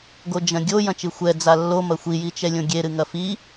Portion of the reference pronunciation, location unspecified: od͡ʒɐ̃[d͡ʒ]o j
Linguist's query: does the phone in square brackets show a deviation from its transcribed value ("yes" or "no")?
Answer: yes